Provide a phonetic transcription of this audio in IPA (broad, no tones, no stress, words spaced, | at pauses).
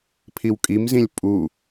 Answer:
pʰiwkʼimzĩlʲ pʼu